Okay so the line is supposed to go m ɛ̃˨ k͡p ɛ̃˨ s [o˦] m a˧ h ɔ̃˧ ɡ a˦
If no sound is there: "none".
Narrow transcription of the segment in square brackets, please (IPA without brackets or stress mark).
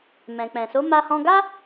o˨˦